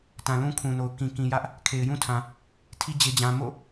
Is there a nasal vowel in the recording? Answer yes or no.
yes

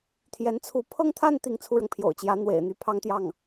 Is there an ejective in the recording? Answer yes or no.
no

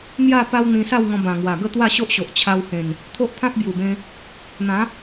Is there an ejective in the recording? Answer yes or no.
no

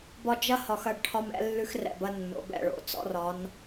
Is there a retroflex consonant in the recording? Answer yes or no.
yes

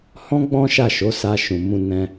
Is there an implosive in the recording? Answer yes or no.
no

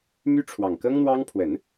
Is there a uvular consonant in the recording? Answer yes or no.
no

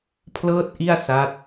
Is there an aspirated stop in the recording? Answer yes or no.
yes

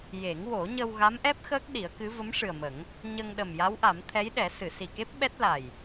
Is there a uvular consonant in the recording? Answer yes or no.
no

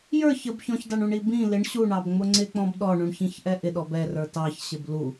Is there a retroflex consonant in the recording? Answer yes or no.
yes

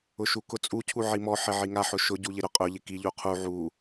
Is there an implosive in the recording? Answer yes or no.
no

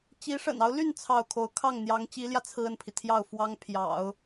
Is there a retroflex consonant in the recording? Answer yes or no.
yes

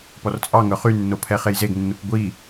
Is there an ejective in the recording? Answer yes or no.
yes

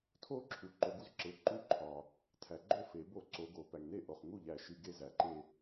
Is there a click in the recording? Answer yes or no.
yes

